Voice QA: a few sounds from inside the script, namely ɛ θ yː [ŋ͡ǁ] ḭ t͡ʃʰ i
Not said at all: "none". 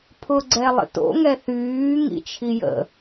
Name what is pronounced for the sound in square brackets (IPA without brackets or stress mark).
ŋ